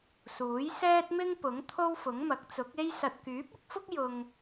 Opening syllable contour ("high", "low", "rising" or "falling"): rising